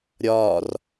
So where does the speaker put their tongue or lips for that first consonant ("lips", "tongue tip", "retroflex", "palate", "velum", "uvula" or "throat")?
tongue tip